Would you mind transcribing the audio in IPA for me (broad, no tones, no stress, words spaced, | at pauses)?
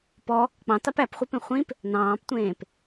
pɔ | k͡pɑ̃tɑp æpχʷipẽ χʷĩp | nɑ̃ːptʷẽːp